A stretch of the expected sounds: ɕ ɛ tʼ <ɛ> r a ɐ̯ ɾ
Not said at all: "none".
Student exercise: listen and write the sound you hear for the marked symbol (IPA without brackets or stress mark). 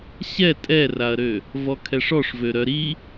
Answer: ɛ